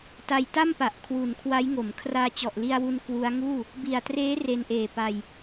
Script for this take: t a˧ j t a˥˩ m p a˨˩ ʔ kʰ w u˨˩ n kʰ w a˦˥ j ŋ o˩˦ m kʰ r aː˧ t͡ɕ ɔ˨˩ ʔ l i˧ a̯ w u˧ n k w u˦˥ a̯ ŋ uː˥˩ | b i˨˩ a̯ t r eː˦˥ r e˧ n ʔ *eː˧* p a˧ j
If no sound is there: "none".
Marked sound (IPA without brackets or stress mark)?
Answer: eː˨˩